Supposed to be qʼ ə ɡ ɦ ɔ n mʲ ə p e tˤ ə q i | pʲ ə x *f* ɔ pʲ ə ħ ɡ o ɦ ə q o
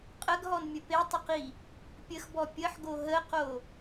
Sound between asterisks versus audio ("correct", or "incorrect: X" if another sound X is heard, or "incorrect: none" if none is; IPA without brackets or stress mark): incorrect: b